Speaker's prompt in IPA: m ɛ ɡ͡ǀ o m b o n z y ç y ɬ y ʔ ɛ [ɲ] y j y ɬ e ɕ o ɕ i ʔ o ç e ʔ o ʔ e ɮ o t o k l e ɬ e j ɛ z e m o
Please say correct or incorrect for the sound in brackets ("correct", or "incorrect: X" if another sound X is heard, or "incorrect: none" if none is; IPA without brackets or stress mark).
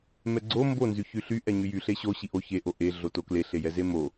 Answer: correct